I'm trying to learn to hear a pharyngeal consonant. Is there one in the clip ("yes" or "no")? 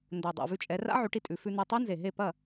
yes